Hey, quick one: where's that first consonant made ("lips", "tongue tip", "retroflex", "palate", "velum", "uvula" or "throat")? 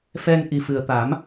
lips